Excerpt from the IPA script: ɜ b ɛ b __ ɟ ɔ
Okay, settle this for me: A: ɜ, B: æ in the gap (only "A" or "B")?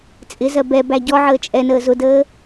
B